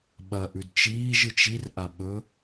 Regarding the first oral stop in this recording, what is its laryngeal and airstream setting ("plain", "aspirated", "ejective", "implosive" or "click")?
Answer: implosive